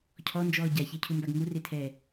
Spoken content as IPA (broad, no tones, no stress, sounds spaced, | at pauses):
cʰ ɔ n d͡ʒ ɔː ɟ a ç e cʰ u m b a ɡ ŋ u r e tʰ ɛː